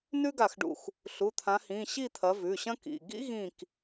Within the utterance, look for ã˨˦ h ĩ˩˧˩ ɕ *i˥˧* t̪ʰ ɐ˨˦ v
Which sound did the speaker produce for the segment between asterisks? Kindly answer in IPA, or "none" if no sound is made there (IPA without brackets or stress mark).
i˥˧